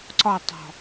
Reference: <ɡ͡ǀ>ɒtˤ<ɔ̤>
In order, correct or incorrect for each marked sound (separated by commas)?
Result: incorrect, correct